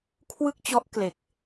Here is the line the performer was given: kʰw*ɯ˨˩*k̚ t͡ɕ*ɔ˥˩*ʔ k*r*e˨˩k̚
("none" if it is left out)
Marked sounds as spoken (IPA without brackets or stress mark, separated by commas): ɯ˥˩, ɔ˦˥, l